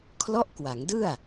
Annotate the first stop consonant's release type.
aspirated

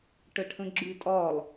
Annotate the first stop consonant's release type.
plain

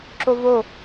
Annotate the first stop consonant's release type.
click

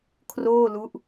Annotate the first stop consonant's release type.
aspirated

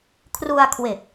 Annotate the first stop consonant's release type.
aspirated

